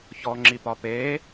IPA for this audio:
ç ɔ ŋ͡ǁ i p ɒ p e

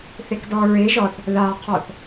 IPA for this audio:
θ e k d ɔ ɹ e ʒ ɔ θ | ð a qʰ ɔ θ

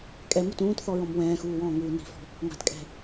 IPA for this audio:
kʼ ɛ m u t ũː t θ ɔ ɹ ɔ̃ m w ɛ̃ː x uː w ɔ̃ː ŋ uː n i̤ f ɔ̤ | ŋ a̤ t kʼ ɛ̤

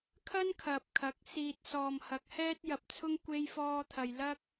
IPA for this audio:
kʰ ɐ˥ n kʰ ɐ˨ p̚ kʰ ɐ˨˥ k̚ s iː˨ t̚ s ɔː˨ m h ɐ˨˥ k̚ h ɛː˥ t̚ j ɐ˨ p̚ t͡sʰ ʊ˥ ŋ kʷ e˥ j f ɔː˥ t̪ʰ ɐ˧ j l ɐ˥ k̚

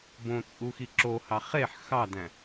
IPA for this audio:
b õ t͡sʼ u x i ǁ o h ɑ χ e ħ x ɑ d æ̃

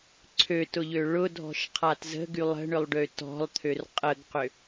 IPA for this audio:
ǀʰ ø t ʊ ʎ ø ɭ ʊ dʱ ɔ̤ ʃ qʰ a t z ə̤ ɡ y lˠ ə̤ ɳ ʏ lˠ ɖ ø t ɔ̤ lˠ t̪ʰ ø r qʼ ə ɡ q ʏ

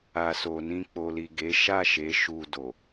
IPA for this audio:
a˨ s o˨ n ĩ˧ k͡p o˨ l i˨ ɡ e˨˦ ʃ a˦˨ ʃ e˨˦ ʃ u˧ d o˨

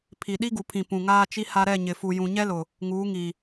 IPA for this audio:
pʰ i˨ ɗ i˦ ɡ u˨ pʰ ĩ˨ p ũ˨ ŋ aː˦ t͡ʃ i˦ h a˦ ɾ ɛ˦˨ ɲ ɪ˨ f u˨ j ũ˨ ɲ ɛ˦ l ʊ˨ | ŋ uː˨˦ ŋ i˨

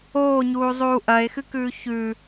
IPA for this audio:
oː ɲ uː zˤ uː ʔ ɐ e̯ x ɨ k ʉː ç ʉ

